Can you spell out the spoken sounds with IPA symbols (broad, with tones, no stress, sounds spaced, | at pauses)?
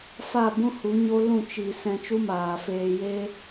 f a˦˨ b ũ˦ h u˨˦ ɲ o˦ l ũ˦˨ t͡ʃ i˨ s ɛ̃˧ t͡ʃ u˦ m aː˨ f eː˧ j e˦